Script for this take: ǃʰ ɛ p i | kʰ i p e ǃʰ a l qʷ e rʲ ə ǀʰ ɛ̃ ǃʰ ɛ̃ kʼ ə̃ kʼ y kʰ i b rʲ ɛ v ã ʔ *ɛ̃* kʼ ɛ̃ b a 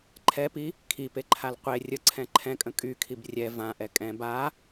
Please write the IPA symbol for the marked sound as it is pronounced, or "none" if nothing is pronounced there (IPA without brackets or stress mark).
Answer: ɛ